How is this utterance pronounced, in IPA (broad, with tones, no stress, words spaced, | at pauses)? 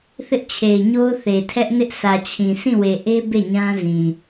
θɪ˦ʔt͡ɕʰe˨ɪ̯ɲo˦ʊ̯ θe˨tʰɛ˦ʔnɪ˦ʔ sä˨t͡ɕʰĩ˨ sĩ˦˨we˨ ʔe˦ be˦˨ɲã˦zĩ˨